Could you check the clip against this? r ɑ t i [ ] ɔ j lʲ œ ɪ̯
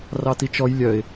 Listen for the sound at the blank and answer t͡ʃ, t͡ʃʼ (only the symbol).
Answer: t͡ʃ